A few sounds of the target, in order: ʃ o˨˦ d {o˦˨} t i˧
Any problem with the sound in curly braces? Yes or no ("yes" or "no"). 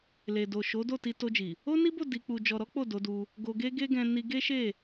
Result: no